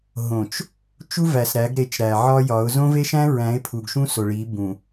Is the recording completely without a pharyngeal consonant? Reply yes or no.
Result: no